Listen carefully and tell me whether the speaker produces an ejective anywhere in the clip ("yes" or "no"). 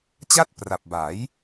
no